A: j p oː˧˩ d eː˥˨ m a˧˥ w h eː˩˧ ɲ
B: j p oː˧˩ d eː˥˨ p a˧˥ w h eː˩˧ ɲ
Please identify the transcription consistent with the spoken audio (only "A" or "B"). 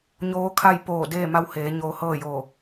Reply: A